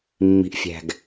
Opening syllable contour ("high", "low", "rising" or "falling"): low